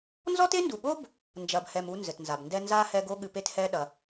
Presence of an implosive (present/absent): present